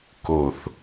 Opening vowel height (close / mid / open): mid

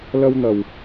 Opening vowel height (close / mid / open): open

